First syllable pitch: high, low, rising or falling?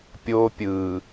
high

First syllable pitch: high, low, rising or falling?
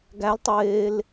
rising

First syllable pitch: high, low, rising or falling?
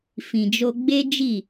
low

